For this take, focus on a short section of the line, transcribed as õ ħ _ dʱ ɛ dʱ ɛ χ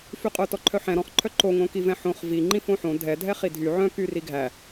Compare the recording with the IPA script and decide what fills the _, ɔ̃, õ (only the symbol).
õ